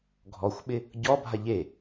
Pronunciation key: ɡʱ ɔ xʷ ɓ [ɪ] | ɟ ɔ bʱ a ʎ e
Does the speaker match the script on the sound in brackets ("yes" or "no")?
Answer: yes